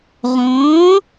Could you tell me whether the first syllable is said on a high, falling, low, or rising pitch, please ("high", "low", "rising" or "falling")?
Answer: rising